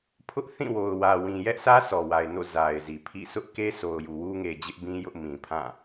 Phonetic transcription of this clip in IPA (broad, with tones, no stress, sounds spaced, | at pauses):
pʰ ʊ˦ ʔ θ ĩ˦˨ w o˨ ʊ̯ w ä˨ w ĩ˨ j ɛ˦ ʔ s ä˦ s ɔ˨ w a˨ ɪ̯ n o̰˦˨ z a˨ ɪ̯ z i˨ pʰ ḭ˦˨ sʰ ʊ˦ ʔ k e˦ s o˨ ʊ̯ j u˨ w u˦ ŋ e˨ d͡ʑ ɪ˦ ʔ b ĩ˦ j ʊ˦ ʔ m ĩ˨ pʰ ã˦˨